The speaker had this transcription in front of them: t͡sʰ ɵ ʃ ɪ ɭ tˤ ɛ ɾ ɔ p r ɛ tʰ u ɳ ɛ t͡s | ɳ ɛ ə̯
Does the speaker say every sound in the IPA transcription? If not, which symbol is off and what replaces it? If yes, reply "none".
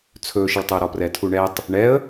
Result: t͡s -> tˤ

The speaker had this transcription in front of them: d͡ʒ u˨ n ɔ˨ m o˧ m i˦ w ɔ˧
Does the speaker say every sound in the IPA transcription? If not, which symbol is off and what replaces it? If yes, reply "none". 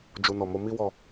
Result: none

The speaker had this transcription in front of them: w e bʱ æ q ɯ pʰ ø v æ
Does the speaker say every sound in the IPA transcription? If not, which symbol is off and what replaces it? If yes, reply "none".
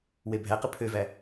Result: none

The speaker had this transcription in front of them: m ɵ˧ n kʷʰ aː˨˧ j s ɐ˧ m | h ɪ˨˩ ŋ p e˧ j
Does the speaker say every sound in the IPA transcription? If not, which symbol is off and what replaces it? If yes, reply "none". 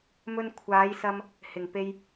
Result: none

